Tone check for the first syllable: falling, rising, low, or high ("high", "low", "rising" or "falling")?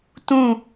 falling